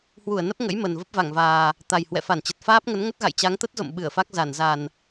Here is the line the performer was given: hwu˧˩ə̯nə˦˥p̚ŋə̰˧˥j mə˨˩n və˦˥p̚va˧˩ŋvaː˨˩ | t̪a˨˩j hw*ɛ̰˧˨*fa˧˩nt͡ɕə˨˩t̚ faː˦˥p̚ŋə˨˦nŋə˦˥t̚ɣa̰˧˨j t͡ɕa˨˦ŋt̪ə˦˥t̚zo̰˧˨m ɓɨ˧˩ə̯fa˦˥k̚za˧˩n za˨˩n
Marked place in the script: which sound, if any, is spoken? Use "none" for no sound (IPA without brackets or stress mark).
ɛ̰˧˨